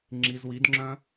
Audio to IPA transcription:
ŋ͡ǁ i z w i d ŋ͡ǁ œ̃

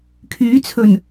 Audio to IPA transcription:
kʰ yː˨˥ t͡sʰ ɵ˨˩ n

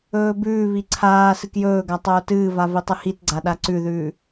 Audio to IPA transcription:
ɵː b ʉː β i ǀʰ aː s ɨ k j ɵː ɡ a tˤ oː t ɨː v a v i tˤ ɨ h i t ɡ͡ǀ a ɗ a ǀ ʉ ð ʉː

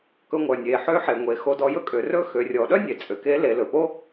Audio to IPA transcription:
k ɵ˧ ŋʷ œ˩ nʲ e˩ ħ ø˧˥ ħ e˩ ŋʷ e˩˧ x o˧ d ɔ˧ j ɵ˥ kʼ ø˩˧ r ɵ˥ x ø˩˧ rʲ ɔ˩˧ ɗ œ˥ nʲ e˩ t͡sʼ ø˩ k e˧˥ l e˩˧ l ɵ˩ p o˥

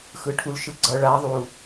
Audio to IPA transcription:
x ɯ ʈʰ u l ʃ ɯ ɡ͡ǀ ʌ ɭ a ðˤ u

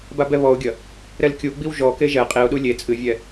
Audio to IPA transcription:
b a b ɛ β ɔ ʊ̯ ɡʲ ɐ | ɾ ɛ l kʲ u ɡ͡b i w ʒ ɔ k e ʒ ɛ qʼ i ʊ̯ ɗ u lʲ e t͡sʼ ɨ vʲ ɛ

